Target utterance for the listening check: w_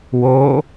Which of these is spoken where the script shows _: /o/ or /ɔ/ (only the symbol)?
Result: o